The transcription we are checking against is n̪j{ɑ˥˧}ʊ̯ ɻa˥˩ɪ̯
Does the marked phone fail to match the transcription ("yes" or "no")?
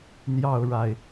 no